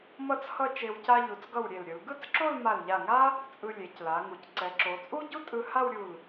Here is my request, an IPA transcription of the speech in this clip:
m ʌ˥˧ t͡s h ʌ˥˧ t͡ʃ e˧ w c a˧ ʎ u˩˧ t͡s ɡ ʌ˧˩ w ɾʲ e˧˩ l ɾʲ ɯ˩˧ l ɡ ɯ˥˧ t͡s ǁ o˥˧ l m a˧˩ l ʎ a˧˩ ŋ a˥ | t͡sʼ ɯ˧ lʲ e˩˧ c l a˩˧ ŋ u˩˧ c ǀ ɛ˩˧ ǁ o˩˧ t͡sʼ u˥ ɟ u˥ tʼ ɯ˧ h a˥˧ w ɾʲ u˧˩ l

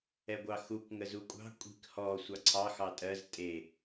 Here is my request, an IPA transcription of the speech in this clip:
ɛ ɡʷ ɑ x u k ŋ ə z u kʷʼ ɑ̤ kʷʼ i̤ k h ɔ sʷ ɑ ǀʰ ɑ x ɑ tʼ ɜ z tʼ e

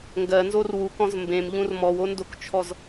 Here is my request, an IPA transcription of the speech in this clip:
ŋ ɡ ɜ n z o r w u k ɔ̃ z m b ẽ m ʎ ũ r m ɔ w o n d o k t͡ʃʰ ɔ z

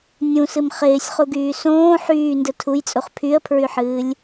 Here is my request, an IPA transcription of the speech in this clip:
nʲ ũ s ɨ m χ ɪː sʲ χ u ɡ yː s õː ħ yː n d ɘ tʰ u j t͡sʼ u χ pʰ y ə̯ pʰ ɹ y ħ ɨː lʲ

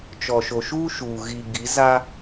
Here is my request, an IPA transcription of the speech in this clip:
t͡ʃ ɔ˨ ʃ o˨ ʃ uː˦ ʃ uː˨ ɣ i˨ ɡ i˨˦ z a˦

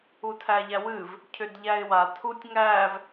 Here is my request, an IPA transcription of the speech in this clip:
u tʰ æ ʎ æ w ɨ v | cʰ ʏ d ʎ æ ɪ̯ w a tʰ u tʲ ŋ æ v

